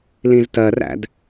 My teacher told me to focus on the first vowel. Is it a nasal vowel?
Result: yes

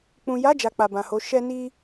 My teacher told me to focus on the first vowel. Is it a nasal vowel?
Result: yes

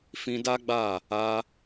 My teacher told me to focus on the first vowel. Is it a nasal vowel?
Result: yes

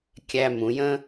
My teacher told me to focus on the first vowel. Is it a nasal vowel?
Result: no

